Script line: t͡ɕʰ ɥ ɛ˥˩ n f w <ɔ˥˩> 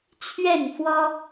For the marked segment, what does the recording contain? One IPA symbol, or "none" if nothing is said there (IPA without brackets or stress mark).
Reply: ɔ˥